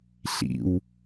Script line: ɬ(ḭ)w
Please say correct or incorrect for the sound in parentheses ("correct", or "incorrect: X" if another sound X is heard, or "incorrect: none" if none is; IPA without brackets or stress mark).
correct